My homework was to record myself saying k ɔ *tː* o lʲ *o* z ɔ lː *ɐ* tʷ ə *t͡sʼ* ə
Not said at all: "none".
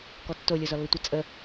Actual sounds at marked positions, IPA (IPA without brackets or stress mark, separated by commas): tː, o, ə, t͡sʼ